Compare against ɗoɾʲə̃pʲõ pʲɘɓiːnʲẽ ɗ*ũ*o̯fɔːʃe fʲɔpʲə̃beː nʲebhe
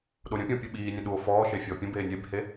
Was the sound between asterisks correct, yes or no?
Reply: no